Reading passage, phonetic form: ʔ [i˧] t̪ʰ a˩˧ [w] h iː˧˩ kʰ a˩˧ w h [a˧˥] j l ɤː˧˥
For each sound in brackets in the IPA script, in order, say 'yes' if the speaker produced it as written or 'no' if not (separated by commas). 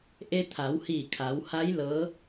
no, yes, yes